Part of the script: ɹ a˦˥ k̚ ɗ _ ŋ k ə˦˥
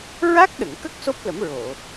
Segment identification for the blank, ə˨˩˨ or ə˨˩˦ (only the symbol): ə˨˩˨